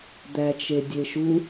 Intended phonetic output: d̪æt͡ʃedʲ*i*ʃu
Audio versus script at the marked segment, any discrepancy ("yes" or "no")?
yes